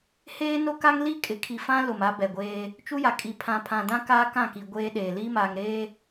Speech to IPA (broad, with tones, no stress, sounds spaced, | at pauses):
h eː˦ n o˦ k a˦ ŋ l i˦ kʼ ɪ˨ kʰ i˨ f ã˦ l ʊ˨ m a˦ b ɛ˨ ɡʷ eː˦ | t͡ʃ u˦ j a˨ kʼ i˨ pʰ ã˨ pʰ ã˨ d ã˦ k aː˦ k ã˦˨ k i˨ ɡʷ eː˦ ɗ eː˨ l iː˦ m aː˨ ŋ ɾ eː˦